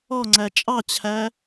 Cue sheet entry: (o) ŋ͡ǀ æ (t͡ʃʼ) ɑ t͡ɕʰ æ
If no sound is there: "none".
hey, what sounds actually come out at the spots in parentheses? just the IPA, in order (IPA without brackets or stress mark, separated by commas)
ɔ, t͡ʃʼ